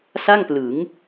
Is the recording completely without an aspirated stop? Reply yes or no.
yes